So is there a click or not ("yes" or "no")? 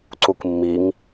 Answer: yes